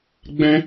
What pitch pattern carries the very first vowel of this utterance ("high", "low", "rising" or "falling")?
high